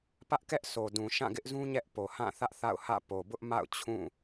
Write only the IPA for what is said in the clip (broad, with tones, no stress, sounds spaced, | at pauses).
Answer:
p ä˦ ʔ k ɛ˦ ʔ s o˨ d ũ˨ ʃ ã˦˨ ɡ ɪ˦ ʔ z ũ˦ ɲ ɛ˦ ʔ p o˨ h ã˦˨ θ ä˦ ʔ θ a̰˦˨ ʊ̯ h ä̰˦˨ p o˨ b ʊ˦ ʔ m a̰˦˨ ʊ̯ t͡ɕʰ ũ˦˨